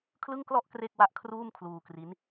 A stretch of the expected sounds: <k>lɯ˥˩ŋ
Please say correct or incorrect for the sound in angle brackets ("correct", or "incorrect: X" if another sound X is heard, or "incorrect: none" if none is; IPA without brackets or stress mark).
incorrect: kʰ